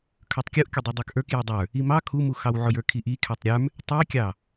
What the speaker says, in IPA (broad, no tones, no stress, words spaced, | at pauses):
kʰə˞tˤkʲuʔkʲʊ dˤə˞dˤə˞kʔə˞k jʊdˤə˞ | imɑ kʰumuxɑw ʕʊjə˞kʰiʔi kʰɛtˤɾʲə˞m | tˤikʲɑ